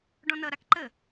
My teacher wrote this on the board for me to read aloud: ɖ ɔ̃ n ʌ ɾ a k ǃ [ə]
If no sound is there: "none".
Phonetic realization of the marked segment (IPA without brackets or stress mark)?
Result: ə